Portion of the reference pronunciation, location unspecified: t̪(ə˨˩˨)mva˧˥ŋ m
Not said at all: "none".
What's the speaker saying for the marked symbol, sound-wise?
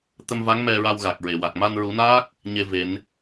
ə˧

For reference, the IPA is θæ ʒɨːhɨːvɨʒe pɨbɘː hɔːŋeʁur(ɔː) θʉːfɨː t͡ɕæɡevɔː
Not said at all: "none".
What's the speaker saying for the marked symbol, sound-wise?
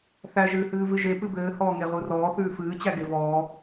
ɔː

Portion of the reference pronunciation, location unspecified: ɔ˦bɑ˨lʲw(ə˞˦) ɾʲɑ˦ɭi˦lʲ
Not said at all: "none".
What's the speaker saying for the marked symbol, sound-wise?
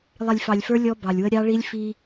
ə˦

